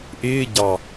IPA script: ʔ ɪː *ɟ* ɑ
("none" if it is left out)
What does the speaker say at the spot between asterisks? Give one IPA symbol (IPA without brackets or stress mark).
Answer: ɟ